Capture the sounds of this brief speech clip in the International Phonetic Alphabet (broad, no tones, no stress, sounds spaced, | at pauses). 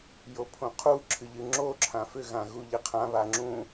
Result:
j o pʰ õ qʰ u ǁʰ ɨ ʎ ɨ ŋ͡ǁ o ǁʰ ã f ʏ ɣ ã ɣ u ʎ ɘ qʰ ã β a ŋ͡ǁ ũ